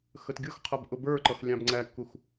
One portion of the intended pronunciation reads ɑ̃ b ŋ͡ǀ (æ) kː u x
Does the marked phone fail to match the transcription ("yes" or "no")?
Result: no